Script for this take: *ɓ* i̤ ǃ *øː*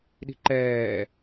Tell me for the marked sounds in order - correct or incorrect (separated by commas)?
incorrect, incorrect